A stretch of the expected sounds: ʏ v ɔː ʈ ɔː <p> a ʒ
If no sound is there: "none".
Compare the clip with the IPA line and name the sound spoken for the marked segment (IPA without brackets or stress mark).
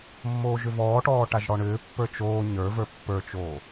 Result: ʈ